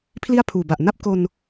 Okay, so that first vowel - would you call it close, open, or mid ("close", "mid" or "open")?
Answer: close